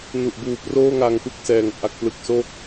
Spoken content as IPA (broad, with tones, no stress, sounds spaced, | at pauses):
n u˨˩ ʔ b uː˨˩ p r oː˥˩ ŋ a˧ ŋ p ɯ˥˩ k̚ s ɛː˧ ŋ ʔ a˦˥ k̚ p l ɯ˦˥ k̚ s o˥˩ k̚